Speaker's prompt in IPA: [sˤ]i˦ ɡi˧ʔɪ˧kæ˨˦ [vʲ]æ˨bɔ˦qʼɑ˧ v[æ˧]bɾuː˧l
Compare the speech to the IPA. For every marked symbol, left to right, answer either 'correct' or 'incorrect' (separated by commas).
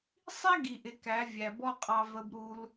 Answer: correct, correct, incorrect